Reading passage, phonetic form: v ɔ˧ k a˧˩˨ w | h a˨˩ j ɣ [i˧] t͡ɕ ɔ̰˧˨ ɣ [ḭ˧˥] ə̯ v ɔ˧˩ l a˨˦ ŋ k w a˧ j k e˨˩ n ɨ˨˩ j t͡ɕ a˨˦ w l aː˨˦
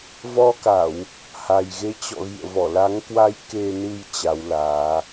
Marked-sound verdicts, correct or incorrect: incorrect, incorrect

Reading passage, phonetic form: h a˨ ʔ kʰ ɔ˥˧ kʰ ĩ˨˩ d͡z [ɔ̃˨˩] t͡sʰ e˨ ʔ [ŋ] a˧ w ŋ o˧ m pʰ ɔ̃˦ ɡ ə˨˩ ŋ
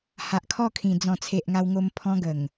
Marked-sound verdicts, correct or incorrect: correct, correct

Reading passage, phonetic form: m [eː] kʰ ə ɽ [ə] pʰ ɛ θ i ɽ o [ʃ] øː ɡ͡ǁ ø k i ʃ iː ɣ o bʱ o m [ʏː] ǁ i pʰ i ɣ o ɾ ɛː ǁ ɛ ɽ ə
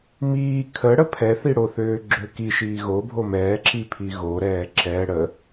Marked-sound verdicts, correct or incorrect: incorrect, correct, incorrect, incorrect

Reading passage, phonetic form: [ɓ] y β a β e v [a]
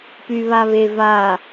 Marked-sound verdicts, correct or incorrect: incorrect, correct

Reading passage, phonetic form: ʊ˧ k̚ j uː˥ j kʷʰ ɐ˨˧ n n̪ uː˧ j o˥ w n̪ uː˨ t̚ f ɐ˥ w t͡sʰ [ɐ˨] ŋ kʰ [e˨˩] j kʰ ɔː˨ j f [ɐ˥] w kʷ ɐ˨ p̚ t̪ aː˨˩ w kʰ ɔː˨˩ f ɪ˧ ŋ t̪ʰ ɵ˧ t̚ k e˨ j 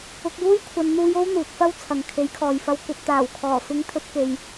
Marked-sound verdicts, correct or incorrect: correct, incorrect, incorrect

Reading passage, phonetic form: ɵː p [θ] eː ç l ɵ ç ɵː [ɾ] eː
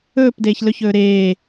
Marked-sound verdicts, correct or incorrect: incorrect, correct

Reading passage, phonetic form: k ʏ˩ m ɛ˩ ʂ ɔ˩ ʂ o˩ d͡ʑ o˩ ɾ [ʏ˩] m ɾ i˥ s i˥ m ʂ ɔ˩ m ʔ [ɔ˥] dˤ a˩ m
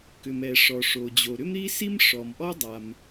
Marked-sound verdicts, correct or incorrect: incorrect, correct

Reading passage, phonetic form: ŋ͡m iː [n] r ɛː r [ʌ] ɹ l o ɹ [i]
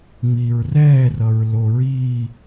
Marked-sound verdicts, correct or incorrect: incorrect, correct, incorrect

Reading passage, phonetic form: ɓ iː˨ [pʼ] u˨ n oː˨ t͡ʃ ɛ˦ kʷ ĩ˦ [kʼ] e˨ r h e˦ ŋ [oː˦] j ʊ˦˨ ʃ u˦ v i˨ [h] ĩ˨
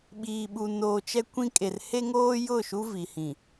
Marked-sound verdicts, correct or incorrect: incorrect, correct, correct, correct

